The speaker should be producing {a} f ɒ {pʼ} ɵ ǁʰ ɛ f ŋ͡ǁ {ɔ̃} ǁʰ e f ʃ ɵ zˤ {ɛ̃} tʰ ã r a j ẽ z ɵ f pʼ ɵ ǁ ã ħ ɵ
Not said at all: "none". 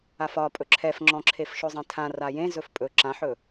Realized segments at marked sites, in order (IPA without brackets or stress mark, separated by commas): a, pʼ, ɔ̃, ẽ